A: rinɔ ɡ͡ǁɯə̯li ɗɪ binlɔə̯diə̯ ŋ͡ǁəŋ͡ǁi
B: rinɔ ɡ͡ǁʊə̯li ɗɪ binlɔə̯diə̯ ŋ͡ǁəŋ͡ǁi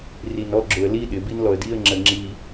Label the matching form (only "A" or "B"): B